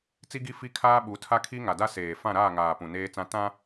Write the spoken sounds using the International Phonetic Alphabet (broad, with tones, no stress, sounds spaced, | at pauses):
t͡s i˦ ɡ i˦ f i˦ kʰ aː˦ ɓ u˨˦ tʰ a˦ kʰ i˦ ŋ a˨ d a˦ s eː˨ f ã˦˨ ɾ aː˦˨ ŋ aː˨ p ũ˨ n eː˦ t͡s ã˦ t ã˦